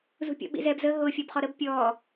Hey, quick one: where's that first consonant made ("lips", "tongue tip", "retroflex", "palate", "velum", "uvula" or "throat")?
tongue tip